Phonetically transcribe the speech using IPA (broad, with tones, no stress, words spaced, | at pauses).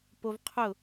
po˦v qʰʊ˦˨